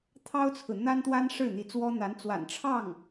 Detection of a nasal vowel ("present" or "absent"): absent